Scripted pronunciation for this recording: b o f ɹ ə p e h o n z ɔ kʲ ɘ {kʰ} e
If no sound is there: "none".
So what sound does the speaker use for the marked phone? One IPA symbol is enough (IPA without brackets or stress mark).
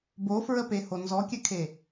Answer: kʰ